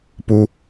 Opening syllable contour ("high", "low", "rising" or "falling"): high